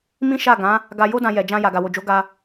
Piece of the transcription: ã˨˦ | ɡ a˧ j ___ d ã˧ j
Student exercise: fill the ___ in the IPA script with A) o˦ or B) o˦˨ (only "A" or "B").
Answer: A